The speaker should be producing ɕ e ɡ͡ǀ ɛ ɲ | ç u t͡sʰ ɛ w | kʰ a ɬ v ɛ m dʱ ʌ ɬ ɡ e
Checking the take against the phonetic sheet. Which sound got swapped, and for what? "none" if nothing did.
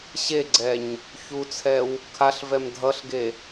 none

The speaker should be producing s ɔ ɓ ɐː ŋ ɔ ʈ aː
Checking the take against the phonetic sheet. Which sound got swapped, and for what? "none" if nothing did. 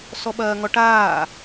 none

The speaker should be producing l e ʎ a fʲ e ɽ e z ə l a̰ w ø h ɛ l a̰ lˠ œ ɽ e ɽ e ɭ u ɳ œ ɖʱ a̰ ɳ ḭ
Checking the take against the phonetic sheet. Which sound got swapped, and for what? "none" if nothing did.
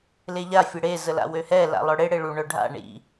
none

